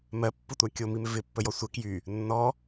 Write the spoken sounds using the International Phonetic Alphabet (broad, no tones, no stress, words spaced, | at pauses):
mɜpːɯtʷa kʲomimɪ vɪpːəjɔ sʷə kjy | nːɔ